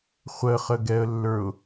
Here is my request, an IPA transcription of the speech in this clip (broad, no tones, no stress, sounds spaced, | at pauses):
χʷ ə χ ə ɡ ɛ ə̯ lː ə˞ ʊ̯